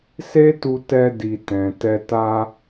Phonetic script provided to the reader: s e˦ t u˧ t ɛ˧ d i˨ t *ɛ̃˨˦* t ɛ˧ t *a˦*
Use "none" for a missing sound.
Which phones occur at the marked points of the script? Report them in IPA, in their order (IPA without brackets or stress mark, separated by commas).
ɛ̃˨, a˦